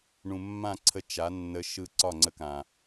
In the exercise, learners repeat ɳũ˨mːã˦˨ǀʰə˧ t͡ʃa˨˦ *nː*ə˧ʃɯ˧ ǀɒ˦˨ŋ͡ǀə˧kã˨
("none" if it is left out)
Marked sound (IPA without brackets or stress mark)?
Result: nː